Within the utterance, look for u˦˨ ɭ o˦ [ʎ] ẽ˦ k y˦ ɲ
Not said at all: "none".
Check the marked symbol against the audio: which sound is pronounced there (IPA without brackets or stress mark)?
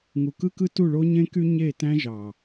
ɲ